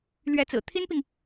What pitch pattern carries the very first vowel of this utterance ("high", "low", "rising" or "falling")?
rising